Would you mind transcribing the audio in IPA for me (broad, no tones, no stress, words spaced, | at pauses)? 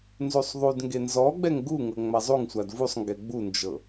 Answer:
nzusˤðˤudŋɡe nzɔɡ͡bɛŋ ɡuŋɤ ŋ͡mazˤuŋsʷad vusˤŋɡɛ ɡ͡bund͡ʒɤ